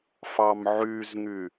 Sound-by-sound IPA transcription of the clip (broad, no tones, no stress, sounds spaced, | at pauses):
f ɑ m ʕ y z ŋ y